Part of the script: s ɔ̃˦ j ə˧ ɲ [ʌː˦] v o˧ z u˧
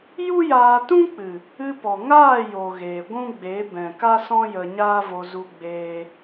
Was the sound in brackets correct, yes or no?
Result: no